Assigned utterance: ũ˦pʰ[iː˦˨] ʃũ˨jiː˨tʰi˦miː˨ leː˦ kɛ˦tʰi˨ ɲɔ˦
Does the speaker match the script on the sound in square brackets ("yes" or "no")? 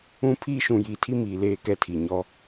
no